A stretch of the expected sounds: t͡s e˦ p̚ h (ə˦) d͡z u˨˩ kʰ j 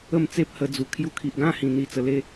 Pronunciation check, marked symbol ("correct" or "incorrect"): incorrect